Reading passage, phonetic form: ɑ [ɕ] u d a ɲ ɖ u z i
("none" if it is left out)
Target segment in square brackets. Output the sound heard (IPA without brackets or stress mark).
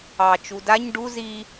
t͡ʃ